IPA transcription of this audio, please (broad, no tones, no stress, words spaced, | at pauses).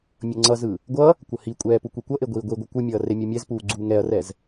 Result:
mʲʌŋ͡ǀʌzɯ | ɡʷʌ | kʷʌhikʷʼɛː pukʷikʷʌʔe ɡʷiːɡʷiɡʷɯ kʷɯmʲʌː remʲumʲɛzpuː ɡ͡ǀuːŋɛɐ̯rɛz